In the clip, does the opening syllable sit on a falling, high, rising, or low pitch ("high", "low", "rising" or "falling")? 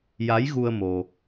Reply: rising